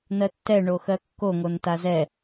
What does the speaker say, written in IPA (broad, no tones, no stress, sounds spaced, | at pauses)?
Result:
n ɜ tː ɛ ɳ o x ɜ kː o ŋ o n t a z ɛ